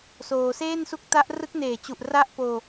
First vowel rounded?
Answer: yes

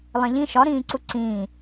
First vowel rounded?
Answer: no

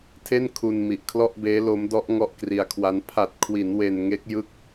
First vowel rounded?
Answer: no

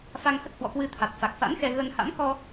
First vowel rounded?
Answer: no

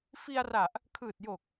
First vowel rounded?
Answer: no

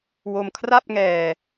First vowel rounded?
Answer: yes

